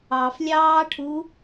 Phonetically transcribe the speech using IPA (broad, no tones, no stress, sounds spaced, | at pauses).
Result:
ɑ f lʲ ɑː ʈʰ u